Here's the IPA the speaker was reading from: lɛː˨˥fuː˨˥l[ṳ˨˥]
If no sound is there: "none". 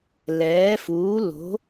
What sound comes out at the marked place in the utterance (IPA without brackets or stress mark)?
o̤˨˥